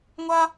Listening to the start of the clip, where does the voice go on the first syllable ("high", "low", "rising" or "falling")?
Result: high